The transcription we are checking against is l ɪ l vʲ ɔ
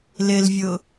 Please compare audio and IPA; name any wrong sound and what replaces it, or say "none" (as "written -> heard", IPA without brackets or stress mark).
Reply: ɔ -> ʊ